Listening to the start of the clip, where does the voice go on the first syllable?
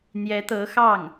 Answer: rising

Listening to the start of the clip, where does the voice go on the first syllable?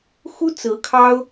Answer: high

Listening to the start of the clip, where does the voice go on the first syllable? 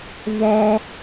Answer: high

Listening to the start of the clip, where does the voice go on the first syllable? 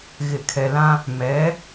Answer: low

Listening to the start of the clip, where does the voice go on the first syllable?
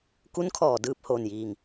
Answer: rising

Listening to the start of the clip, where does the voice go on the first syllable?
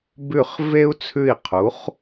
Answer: falling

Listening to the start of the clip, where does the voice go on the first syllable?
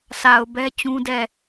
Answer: low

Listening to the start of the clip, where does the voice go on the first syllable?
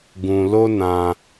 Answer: low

